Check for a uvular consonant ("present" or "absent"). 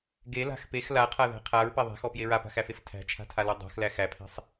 present